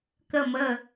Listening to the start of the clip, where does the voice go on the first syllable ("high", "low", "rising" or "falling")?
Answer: falling